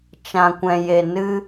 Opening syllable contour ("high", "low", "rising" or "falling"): low